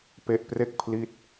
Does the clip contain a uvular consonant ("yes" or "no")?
no